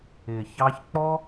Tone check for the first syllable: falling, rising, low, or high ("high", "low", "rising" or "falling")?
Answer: low